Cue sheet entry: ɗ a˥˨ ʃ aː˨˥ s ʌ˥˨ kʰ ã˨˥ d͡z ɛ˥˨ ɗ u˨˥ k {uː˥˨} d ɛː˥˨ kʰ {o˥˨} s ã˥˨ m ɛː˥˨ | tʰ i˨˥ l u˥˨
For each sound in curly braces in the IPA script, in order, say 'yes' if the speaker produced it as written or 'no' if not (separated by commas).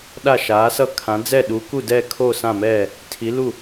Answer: no, yes